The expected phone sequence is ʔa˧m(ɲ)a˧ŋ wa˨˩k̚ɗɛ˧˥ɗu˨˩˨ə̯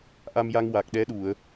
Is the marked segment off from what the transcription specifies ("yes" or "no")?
yes